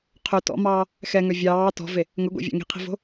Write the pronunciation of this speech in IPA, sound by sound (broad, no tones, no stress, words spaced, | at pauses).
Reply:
qʰɵ tɔ̰mɑː | xɛŋœ vʲɑː tɔ̤ve | ŋɵɡʷḛvʲɑ̰ ŋi̤qʰi̤vo̤